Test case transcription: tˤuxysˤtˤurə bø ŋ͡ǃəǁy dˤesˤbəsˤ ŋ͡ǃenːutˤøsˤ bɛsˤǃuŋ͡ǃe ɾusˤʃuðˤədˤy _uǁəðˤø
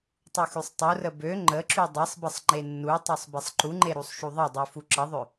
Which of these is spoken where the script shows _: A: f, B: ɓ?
A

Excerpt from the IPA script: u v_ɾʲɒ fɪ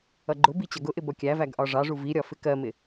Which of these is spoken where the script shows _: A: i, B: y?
A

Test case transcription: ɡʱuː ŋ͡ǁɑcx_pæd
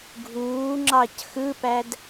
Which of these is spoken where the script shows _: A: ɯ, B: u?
A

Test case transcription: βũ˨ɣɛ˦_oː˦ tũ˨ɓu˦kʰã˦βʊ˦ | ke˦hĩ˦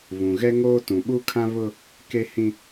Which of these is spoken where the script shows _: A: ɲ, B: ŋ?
B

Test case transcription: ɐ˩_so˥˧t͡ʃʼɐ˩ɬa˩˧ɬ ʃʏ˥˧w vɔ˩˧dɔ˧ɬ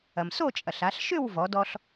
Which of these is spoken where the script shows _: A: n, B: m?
B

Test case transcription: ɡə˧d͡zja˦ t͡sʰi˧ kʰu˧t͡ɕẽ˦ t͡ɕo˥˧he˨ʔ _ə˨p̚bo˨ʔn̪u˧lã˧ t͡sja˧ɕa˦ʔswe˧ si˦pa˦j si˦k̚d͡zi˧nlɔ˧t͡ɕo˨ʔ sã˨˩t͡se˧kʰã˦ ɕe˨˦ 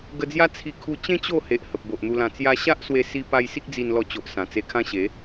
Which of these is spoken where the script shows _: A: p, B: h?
B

